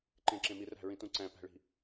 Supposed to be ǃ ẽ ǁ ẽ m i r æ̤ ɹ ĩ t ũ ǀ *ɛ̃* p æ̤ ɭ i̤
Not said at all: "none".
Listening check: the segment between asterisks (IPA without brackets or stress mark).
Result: æ̃